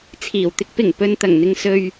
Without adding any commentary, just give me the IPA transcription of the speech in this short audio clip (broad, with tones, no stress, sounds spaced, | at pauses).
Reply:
t͡sʰ iː˨˩ w t̪ ɪ˧ k̚ p ɪ˨˩ ŋ p ɵ˨ n t̪ ɐ˨˩ ŋ n̪ ɪ˨ ŋ s ɵ˨ ɥ